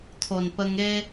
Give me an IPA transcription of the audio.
t̪ʰo˨˩npə˧ŋe˦

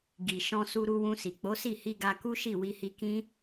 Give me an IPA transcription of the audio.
ɡi˨ ʃɔ̃˧su˧ ɾu˧wũ˧si˨ k͡po˨˦si˦˨hi˧ɡa˧ ku˦ʃi˦˨ wi˧hi˧kĩ˦

